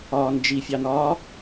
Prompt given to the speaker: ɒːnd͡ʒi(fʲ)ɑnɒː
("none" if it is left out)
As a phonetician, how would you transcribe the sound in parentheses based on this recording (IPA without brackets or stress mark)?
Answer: fʲ